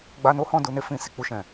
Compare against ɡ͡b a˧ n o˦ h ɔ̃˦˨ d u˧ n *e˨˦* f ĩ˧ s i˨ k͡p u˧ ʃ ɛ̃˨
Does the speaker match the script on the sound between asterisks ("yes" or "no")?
no